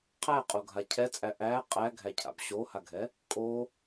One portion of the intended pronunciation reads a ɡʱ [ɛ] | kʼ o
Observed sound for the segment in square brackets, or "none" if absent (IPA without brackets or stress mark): ɛ